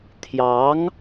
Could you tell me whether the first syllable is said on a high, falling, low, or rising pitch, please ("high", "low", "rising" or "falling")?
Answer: rising